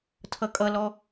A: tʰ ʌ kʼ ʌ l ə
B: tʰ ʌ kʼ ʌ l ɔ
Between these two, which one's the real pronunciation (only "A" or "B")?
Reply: B